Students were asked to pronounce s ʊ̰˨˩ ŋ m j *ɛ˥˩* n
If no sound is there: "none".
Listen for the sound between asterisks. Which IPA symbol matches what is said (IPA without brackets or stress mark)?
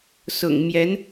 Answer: ɛ˧˥